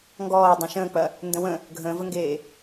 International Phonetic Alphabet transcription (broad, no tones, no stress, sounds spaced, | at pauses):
ŋ ɡ ɔː dˤ õ ʃ ə̃ː k͡p ɐ | n d ə̃ w ə̃ | ɡʱ ə̃ː v ə ŋ ɡ eː